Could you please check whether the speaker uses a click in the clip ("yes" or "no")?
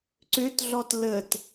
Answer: yes